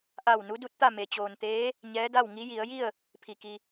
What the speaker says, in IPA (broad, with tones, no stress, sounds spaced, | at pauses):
ʔ a˧˩ w n u˧˥ d u˧˥ t̚ t̪ a˥˨ m e˩ t͡ɕ oː˩ n t̪ eː˧˥ | ɲ ɛː˧˥ d a˥˨ w ŋ i˧˥ j i˩˧ ə̯ j i˥˨ ə̯ | pʰ i˧˩ k i˧